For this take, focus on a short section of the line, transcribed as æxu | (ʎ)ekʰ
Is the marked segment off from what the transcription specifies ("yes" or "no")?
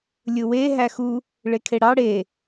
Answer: yes